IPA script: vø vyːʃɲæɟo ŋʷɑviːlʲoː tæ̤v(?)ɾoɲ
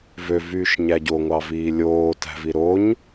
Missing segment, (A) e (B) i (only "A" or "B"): B